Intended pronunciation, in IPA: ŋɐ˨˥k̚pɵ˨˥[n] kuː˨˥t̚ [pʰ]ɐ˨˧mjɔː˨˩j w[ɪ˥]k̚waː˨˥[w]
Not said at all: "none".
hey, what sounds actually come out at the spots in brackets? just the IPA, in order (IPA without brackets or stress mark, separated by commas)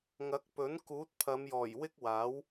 n, pʰ, ɪ˥, w